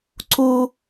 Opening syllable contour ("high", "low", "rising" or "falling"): high